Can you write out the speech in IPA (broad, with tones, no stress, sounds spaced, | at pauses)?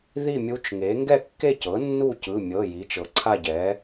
ð i˥˨ mʲ u˧˥ t͡ʃ ŋ e˩˥ ŋ ɡ ɛ˥˨ kː e˥˨ c ɤ˩˥ nː u˥˨ c ɯ˩˧˩ mʲ ɤ˩˧˩ j i˩˥ t͡ʃ ɤ˩˥ ǀʰ a˥˨ ɟ ɛ˩˥